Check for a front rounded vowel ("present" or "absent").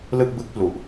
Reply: absent